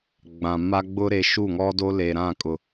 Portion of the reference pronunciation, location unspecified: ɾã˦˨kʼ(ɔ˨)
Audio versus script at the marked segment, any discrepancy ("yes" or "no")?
yes